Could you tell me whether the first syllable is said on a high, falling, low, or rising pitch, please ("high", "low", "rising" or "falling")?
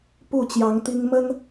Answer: falling